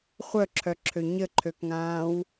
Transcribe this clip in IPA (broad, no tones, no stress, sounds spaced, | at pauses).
χʷ œ ǁʰ œ ǁʰ ø ɲ ə ǃʰ ø k ŋ ãː w